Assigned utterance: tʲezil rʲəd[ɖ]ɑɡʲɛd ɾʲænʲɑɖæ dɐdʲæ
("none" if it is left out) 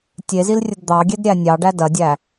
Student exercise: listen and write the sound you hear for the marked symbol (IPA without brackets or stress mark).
d̪